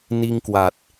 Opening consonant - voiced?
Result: yes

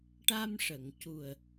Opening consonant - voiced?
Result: no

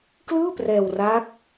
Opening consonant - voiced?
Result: no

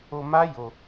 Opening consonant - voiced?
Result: yes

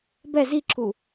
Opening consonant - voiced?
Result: yes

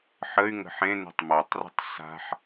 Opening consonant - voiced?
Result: no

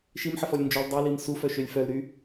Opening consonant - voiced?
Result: no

